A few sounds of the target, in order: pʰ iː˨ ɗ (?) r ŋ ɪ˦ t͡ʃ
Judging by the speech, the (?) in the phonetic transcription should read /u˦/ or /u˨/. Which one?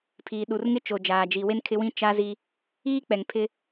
u˨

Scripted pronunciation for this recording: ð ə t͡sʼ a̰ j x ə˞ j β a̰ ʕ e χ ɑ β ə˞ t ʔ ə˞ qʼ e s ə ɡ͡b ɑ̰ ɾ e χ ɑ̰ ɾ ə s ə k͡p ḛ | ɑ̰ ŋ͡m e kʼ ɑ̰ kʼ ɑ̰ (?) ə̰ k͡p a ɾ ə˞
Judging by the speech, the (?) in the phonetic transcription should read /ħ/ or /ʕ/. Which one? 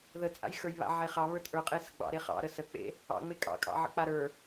ʕ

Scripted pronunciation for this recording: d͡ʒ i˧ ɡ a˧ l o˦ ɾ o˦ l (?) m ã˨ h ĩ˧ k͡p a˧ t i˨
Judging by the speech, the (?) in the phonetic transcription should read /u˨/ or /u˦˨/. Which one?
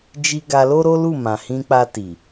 u˦˨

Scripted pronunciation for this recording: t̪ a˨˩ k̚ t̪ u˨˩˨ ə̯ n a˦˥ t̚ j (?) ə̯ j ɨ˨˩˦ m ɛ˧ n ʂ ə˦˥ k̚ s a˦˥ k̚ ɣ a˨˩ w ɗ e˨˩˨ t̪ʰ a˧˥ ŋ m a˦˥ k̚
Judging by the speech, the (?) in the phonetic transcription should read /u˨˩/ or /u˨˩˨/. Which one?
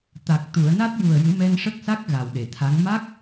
u˨˩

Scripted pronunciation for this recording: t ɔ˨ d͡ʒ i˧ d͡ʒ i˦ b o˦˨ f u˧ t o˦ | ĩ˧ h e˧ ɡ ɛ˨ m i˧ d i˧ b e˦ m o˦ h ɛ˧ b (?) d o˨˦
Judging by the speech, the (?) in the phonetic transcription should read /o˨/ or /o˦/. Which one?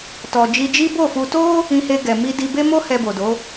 o˨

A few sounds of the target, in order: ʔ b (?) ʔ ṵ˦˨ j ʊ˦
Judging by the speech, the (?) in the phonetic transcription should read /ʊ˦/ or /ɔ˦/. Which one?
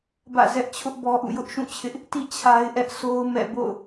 ɔ˦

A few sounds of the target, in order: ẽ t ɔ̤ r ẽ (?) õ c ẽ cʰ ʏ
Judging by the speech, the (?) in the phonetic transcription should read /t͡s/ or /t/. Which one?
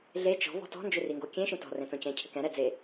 t͡s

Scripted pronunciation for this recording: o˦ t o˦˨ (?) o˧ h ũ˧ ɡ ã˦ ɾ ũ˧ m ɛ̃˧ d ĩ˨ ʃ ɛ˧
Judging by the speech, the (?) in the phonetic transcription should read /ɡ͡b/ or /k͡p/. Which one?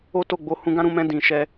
ɡ͡b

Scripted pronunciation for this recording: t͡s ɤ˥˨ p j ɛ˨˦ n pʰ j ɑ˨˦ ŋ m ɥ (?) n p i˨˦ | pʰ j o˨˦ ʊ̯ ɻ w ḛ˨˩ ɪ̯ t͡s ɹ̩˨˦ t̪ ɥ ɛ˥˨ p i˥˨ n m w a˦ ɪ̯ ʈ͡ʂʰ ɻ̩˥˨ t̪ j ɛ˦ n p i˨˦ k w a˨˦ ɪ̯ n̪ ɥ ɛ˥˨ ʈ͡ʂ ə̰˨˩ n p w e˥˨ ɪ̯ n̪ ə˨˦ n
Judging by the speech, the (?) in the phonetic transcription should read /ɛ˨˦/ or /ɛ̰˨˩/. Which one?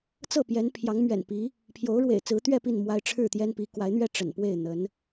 ɛ̰˨˩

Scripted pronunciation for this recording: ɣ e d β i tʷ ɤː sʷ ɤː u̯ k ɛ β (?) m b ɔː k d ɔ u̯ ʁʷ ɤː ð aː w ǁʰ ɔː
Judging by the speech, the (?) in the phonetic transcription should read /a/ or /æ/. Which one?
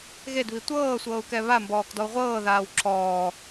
a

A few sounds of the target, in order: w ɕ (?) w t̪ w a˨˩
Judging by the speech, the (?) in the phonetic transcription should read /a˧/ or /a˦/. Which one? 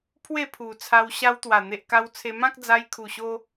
a˧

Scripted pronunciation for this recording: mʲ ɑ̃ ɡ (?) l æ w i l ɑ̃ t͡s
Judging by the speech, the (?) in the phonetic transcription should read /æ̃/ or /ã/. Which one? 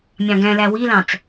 æ̃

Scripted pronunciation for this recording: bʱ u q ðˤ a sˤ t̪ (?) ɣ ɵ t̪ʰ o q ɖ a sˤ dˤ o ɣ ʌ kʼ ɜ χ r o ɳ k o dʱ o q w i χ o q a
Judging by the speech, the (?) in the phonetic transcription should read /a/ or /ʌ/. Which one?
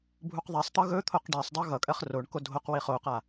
ʌ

